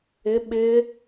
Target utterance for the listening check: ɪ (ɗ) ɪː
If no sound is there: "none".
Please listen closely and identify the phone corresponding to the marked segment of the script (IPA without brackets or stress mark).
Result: ɓ